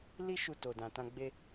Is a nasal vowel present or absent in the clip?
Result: present